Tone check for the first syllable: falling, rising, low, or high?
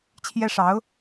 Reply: high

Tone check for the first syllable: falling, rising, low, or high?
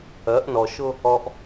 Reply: rising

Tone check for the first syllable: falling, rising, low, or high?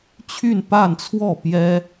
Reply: falling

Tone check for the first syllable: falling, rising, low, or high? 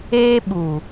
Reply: high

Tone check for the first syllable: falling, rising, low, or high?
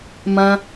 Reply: high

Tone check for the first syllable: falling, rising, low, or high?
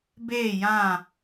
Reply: falling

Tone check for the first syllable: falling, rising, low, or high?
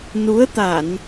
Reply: rising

